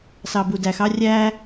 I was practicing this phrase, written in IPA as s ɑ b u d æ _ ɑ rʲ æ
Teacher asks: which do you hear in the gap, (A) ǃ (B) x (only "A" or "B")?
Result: B